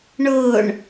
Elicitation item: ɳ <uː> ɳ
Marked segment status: incorrect: ʊː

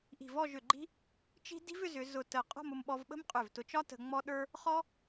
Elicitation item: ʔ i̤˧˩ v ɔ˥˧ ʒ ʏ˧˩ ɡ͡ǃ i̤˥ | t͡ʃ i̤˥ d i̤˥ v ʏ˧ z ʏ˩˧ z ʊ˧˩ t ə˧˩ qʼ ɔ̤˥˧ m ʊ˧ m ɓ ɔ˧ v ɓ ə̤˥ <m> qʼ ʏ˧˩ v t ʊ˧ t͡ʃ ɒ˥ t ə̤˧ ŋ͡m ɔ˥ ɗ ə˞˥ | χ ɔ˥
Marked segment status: correct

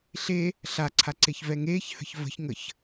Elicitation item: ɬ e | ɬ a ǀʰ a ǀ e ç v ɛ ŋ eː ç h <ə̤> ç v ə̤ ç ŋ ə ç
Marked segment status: correct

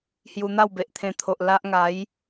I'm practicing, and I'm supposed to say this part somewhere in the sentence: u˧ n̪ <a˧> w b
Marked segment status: incorrect: a˥˧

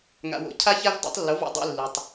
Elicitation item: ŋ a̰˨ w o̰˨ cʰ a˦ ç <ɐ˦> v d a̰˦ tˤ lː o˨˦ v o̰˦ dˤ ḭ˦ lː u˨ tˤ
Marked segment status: incorrect: a˦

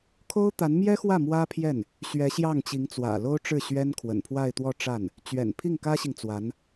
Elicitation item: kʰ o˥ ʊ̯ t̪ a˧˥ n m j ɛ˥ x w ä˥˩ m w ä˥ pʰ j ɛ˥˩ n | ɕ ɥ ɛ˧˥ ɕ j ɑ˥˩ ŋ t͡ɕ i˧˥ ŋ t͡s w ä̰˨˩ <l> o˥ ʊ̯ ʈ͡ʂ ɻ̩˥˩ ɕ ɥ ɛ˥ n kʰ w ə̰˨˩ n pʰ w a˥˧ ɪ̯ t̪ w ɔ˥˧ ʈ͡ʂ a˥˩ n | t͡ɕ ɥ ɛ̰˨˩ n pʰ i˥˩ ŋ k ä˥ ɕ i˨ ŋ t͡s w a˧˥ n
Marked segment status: correct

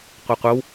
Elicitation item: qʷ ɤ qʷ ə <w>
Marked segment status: correct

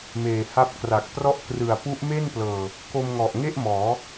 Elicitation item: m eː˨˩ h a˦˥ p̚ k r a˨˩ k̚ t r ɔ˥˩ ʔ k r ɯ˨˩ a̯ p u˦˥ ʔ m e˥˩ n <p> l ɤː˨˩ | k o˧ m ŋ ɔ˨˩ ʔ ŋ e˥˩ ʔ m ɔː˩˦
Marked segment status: correct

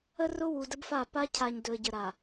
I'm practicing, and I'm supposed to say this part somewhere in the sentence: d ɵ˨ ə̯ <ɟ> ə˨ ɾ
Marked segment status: correct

